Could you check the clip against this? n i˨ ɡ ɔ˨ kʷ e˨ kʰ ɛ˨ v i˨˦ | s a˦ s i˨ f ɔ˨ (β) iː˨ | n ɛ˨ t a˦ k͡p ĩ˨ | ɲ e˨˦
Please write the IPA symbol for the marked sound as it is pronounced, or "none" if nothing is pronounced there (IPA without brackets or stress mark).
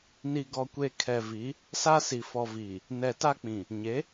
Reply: v